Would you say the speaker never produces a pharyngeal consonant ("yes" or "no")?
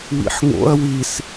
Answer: no